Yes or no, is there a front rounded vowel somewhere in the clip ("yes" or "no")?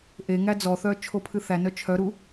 yes